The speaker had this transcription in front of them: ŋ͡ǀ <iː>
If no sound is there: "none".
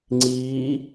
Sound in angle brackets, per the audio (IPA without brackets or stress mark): iː